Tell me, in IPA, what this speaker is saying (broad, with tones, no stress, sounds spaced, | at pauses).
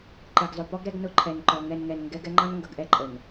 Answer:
ǃ ɛ˨ ɡ zˤ ʊ˨ p ɔ˦ ɡ ɾ ɛ˦ ɡ n ʊ˦ ǃʰ ɛ˨ n ǃ ɔ˨ ŋ ɛ˨ n ŋ ɛ˨ n ŋ ɡ ɛ˦ ɡ ɛ˦ ŋ͡ǃ ɑ˦ n ŋ ɡ ʌ˨ ɡ ʔ ɛ˦ ǃʼ ə˨ n